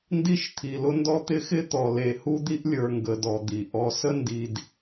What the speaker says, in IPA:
n d i˦ ʃ t̪ʰ i˨ l ʊ˦ n d ɔ˦ t̪ ɪ˦ x ɪ˦ t̪ ɔ˨ l e˨ h u˦ d̪ i˦ ʔ lʲ ə˞˨ ŋ ɡ ə˨ d ɔ˨ d̪ i˨ ʔ ɔ˨ s ə˦ n d i˨ d

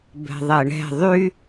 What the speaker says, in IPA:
b ɛ̤ ðˤ ɛ ɳ ɛ̤ ðˤ y

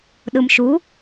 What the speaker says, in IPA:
ɗ ɯ m ʃ u

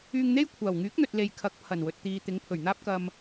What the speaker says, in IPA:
yː˧ ŋ n̪ e˥ j kʷʰ aː˨˩ w ŋ yː˨˥ k̚ n̪ ɵ˨ t̚ l e˨ j kʰ ɐ˨˥ k̚ pʰ ɐ˨˩ n w ɵ˨ t̚ t̪ iː˨ t̪ ɪ˨˥ ŋ pʰ ɵ˨˩ ɥ n̪ aː˥ p̚ k ɐ˧ m

